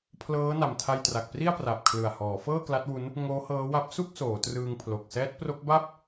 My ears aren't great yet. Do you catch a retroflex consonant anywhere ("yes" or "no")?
no